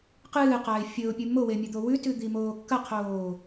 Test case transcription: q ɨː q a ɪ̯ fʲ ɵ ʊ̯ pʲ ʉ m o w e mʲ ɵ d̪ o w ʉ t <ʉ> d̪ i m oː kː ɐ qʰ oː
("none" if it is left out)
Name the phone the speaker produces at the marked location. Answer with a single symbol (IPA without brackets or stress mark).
ʉ